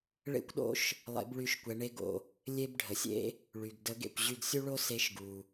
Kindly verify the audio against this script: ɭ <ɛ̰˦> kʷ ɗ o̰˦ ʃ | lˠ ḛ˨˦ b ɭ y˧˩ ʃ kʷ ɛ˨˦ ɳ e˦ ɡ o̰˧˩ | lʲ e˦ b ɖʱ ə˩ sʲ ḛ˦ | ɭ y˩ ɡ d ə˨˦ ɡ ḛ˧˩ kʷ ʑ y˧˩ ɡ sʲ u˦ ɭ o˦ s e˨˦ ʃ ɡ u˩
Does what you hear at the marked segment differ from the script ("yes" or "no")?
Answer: yes